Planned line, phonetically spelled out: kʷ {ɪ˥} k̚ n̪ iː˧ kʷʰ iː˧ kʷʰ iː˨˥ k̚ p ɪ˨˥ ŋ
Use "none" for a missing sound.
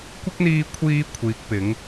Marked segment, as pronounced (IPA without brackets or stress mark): ɪ˥